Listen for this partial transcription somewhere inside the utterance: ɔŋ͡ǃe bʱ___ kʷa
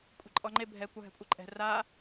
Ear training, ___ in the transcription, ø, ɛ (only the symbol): ɛ